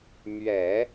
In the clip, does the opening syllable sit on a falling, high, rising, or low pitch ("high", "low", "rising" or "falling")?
low